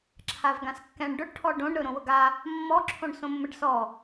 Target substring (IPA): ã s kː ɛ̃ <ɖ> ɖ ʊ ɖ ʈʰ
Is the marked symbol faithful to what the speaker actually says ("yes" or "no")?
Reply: no